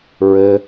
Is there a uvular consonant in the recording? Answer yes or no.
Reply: no